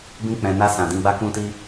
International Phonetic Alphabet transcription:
bĩ˧k͡pɛ̃˨na˧ sã˨dĩ˧ɡ͡ba˦ kũ˧ti˧

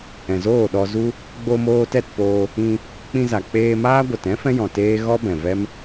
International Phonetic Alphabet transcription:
ɛ̃˨zoː˦˨ɗɔ˧zu˦ | ɡ͡bo˧moː˧tɛ˦˨tpoː˧ | ĩ˧ | k͡pĩ˧za˨k͡peː˧maː˦ ɡʷə˨tɛ̃˦ fɛ̃˦jɔ̃˨ teː˦ ɣɔ˦bɛ̃˨vɛ˦m

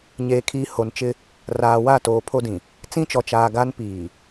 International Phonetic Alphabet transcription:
ɲeː˨ kʰiː˨ ho˨nt͡ʃɪ˦ | raː˨wa˦˨ toː˨pʰo˦dĩ˨ | t͡sĩ˦t͡ʃɔ˨ t͡ʃaː˨ ɡa˦n piː˨

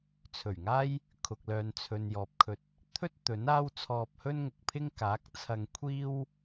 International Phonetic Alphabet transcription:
t͡sʰɵ˨˩ɥŋaː˥j | kʰʊ˨k̚lœː˨nt͡sʰɵ˨n jɔː˨p̚kʰɵ˧t̚ | t̪ʰɵ˥t̚ t̪ɵ˨˥n aː˥wt͡sʰɔː˧p̚hɵ˥n ŋʊ˨k̚pʰɪ˥ŋ kaː˨˥k̚t͡sʰɐ˧ŋ kʷʰiː˥w

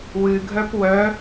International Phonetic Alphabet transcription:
wɨɡʱœp wœ

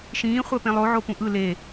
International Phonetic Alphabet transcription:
ʃĩː χʷɛpẽlˠo ʕopũʔɯ le

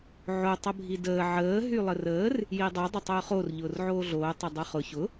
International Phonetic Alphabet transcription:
ʕo tˤəbʱidəː ʕəː ɦylˠərəːr | jidˤo dˤʊtˤʊːχor ʎʊːrʕoːɮoː tˤədˤoχʊ çʊ

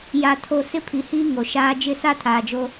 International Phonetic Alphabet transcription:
ja˨tʰo˨ sɪ˦pʰi˨hiː˦ ŋo˨ʃaː˦ d͡ʒɪ˦˨sa˦ tʰaː˨d͡ʒo˦

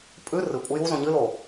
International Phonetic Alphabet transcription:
pʼʉ rɨ kʷʼəjuzõ ɲɨlo

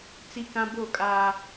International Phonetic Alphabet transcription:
t͡si˦kã˦ bo˦˨kʼaː˦

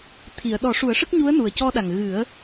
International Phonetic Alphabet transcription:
t̪ʰi˨˩˨ə̯ ɗɔ˨˩˦ʂu˨˩˦ə̯ʂə˦˥k̚ɲu˧˥ə̯ nu˨˩ə̯cɔ˧ɗa˨˩ŋ ɣɨ˨˩˦ə̯

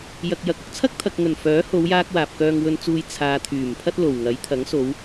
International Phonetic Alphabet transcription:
jɐ˨k̚jɐ˨k̚ ʊ˨˥k̚t͡sʰɐ˥k̚t̪ʰɐ˨k̚ ŋɵ˨˩n fœː˨˥ho˨˧wjaː˧k̚ waː˨p̚kœː˧ŋwɵ˧nt͡suː˧j t͡sʰaː˨ t̪ʰyː˨˩mpʰɐ˥t̚ lo˨˩wŋɐ˨˥j t̪ʰɐ˨˥ŋso˨˧w

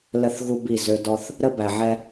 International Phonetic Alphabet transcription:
lə˦˨θɣu˦ bi˦˨zø˦ dɔ˦θ | ɾə˦bæ˨ʕɛ˦

